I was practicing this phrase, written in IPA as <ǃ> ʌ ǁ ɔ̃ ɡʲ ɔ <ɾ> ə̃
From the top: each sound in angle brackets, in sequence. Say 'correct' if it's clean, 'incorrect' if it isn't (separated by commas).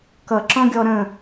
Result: incorrect, correct